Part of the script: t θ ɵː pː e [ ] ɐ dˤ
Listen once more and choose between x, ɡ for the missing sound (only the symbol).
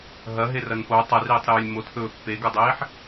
ɡ